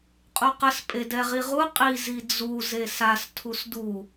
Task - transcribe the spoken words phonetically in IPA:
qʼ u q ə s pʼ e d ɛ ʁ i ʁ u qʼ i z i d͡z u z e s a s tʰ u s d u

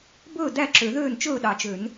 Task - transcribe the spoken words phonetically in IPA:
b ɵː˥˩ d æ˥˩ ǁ ø˨˩˦ ð øː˥˩ n t͡ʃ ɵː˥˩ ɗ ɑ˨˩˦ t͡ʃ ø˨˩˦ n

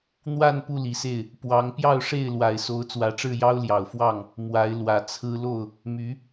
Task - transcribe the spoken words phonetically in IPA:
n̪ w a˥˨ n p u˥˨ l i˨˩ s e˥˨ ɪ̯ | p w ɑ˨˦ ŋ p j ɑ˥˨ ʊ̯ ʂ e˥˨ ɪ̯ l w a˨˩ ɪ̯ s o˨˦ ʊ̯ t͡s w ä˨˦ ʈ͡ʂ ɻ̩˥˨ j ɑ˦ ʊ̯ l j ɑ˨˩ ʊ̯ f w ɑ˥˨ ŋ | m w a˨˦ ɪ̯ l w ä˨˩ t͡sʰ ɹ̩˦ l o˥˨ ʊ̯ | m y˨˦

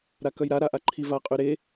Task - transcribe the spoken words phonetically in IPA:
ɾ a k œ j ɾ a ɾ a ʔ a ǃʰ i v a qʼ y ɾ e

